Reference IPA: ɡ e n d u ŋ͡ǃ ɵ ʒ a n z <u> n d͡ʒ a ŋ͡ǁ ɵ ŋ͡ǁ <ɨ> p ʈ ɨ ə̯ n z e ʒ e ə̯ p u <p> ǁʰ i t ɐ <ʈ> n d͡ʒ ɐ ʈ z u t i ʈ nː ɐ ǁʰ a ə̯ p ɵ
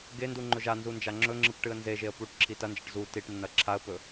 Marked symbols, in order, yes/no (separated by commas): yes, yes, no, no